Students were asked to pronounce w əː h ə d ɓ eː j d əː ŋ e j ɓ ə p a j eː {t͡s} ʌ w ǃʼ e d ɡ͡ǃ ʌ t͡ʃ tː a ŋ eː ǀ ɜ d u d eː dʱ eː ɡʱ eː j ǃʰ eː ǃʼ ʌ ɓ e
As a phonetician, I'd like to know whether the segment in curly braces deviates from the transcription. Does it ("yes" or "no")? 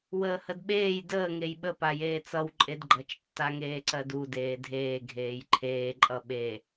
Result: no